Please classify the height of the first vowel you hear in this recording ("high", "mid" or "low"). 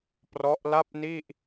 mid